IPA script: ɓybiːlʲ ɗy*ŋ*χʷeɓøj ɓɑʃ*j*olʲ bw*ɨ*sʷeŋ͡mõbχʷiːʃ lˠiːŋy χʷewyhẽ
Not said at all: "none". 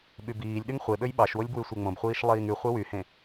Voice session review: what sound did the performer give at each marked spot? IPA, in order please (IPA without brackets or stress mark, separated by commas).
ŋ, w, y